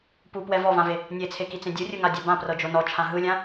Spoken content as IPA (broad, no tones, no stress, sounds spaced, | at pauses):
p u p w ɛ v ɔ v ã v e | nʲ e t͡sʰ e k i t͡s ẽ dʲ ɯ rʲ ɯ ŋ a dʲ a b ã p r ɤ d͡ʒ o n ɔ t͡ʃʰ ã ɦ ɯ lʲ ã